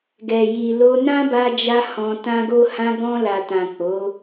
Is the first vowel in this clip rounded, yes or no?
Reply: no